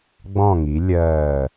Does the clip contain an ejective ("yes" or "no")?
no